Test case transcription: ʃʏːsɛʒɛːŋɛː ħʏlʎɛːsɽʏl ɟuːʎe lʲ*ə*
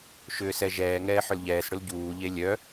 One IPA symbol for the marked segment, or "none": œ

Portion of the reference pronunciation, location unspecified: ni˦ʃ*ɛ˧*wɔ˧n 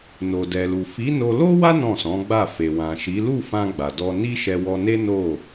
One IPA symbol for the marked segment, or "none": ɛ˧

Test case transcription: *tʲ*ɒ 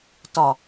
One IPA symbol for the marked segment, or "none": t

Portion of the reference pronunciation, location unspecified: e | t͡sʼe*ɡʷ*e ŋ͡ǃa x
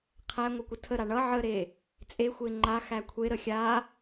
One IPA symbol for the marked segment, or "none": xʷ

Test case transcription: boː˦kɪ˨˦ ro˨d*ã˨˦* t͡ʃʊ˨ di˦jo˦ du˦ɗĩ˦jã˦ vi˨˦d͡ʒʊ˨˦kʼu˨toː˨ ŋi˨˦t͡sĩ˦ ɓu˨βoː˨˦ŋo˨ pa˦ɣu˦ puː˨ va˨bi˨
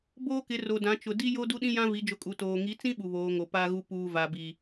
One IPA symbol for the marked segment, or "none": ã˨˦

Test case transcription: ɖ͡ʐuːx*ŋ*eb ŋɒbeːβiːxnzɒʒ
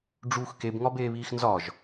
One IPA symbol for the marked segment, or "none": k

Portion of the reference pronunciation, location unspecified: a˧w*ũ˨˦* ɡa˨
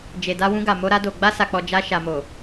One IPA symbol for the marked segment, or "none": ũ˧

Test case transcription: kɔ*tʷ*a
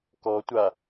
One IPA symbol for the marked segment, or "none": tʷ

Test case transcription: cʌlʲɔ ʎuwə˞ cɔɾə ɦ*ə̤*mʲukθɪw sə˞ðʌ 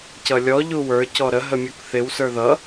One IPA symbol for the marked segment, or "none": ə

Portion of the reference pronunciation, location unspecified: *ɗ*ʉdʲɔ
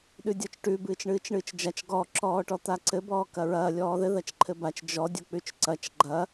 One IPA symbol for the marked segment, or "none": ɗ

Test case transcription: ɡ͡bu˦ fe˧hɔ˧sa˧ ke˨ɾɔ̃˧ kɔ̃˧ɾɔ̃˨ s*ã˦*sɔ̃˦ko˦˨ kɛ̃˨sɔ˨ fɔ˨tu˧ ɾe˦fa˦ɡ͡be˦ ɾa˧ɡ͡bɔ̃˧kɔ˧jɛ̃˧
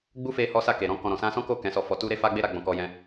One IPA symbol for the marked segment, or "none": ã˧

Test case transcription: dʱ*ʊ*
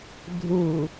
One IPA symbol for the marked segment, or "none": u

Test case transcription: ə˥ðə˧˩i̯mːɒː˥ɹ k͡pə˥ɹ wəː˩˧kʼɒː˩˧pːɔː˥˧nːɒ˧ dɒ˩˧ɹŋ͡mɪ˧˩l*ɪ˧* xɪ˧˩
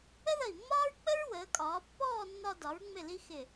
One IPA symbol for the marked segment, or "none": i˧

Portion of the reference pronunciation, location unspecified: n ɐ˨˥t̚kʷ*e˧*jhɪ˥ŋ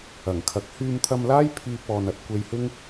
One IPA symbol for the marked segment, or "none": e˧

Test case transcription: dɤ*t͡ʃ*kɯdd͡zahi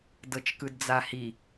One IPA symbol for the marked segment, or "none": t͡ʃ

